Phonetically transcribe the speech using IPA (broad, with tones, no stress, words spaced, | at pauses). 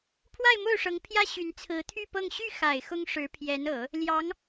pʰwa˥˧ɪ̯mo˥˩ʊ̯ʂɤ˧˥ŋpʰjä˥ ɕy˧˥n t͡sʰɹ̩˧˥t̪ʰy˥˧pɤ˥˧ŋ ɕy˥˩xa˨˩ɪ̯ xʊ˥ŋʂɻ̩˧˥ pʰjɛ˧˥nɤ˨˩˦ | ljɑ˧˥ŋ